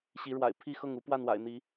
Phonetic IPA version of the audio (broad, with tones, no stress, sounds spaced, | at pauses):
ɕ i˨˦ ɻ w a̰˨˩ ɪ̯ pʰ i˥˨ x ɤ˥˨ ŋ u˦ p w a˥˨ n w a̰˨˩ ɪ̯ n̪ i˨˦